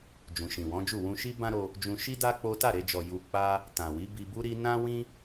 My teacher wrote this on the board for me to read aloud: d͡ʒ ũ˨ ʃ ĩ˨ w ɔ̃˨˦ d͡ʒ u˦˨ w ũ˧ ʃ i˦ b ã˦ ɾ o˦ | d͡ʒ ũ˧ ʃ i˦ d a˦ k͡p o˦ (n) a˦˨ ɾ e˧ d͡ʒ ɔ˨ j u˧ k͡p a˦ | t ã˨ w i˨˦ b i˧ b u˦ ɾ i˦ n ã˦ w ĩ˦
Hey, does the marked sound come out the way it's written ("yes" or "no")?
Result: no